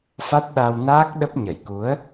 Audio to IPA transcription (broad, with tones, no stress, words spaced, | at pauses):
fa˦˥t̚ɗa˧wnaː˦˥k̚ɗə˦˥p̚ ɲə˧˩jku˨˦ə̯